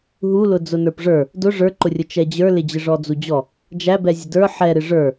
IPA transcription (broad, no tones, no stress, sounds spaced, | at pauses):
ɦ u l ʊ d͡z ʊ n ə˞ p ʐ ə˞ | d ʊ ʐ ə˞ ǃ ʊ rʲ ʊ t͡ʃ ɛ d͡ʑ ə˞ l ɪ d͡ʑ ɪ ʐ ɔ d͡z u d͡ʑ ɔ | d͡ʒ æ b ɛ zʲ ə d ə˞ ħ ɛ ɾ ɪ ʐ ə˞